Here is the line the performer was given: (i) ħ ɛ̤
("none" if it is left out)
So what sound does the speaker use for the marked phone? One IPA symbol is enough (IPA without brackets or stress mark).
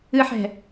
ɨ